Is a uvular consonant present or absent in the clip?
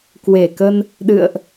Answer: absent